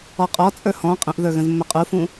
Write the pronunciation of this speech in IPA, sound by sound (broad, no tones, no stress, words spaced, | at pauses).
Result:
ɔqʼɔ t͡sʼə˞hɔ̃ qʼə̃ʔðə˞ɣə̃z mːəqʼufũ